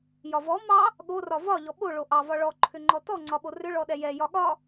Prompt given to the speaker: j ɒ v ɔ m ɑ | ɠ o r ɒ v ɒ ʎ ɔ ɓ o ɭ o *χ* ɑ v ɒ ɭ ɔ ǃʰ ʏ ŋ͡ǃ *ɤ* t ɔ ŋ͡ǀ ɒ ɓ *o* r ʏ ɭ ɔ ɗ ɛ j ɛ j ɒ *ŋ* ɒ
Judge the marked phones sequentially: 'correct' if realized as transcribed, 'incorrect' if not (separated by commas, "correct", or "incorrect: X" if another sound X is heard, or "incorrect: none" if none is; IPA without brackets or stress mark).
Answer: incorrect: ʔ, incorrect: ɔ, correct, incorrect: ɠ